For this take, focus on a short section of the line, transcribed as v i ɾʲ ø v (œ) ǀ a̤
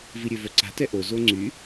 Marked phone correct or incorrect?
correct